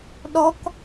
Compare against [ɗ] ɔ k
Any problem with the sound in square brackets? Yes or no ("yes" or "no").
no